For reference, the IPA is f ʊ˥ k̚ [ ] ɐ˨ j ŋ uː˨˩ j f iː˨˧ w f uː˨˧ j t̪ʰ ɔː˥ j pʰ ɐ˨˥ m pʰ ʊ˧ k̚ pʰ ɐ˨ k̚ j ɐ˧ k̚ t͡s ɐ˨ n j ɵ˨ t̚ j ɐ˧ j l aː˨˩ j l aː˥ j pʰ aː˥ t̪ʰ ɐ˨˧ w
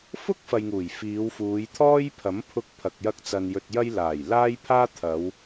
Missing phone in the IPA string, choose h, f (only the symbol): f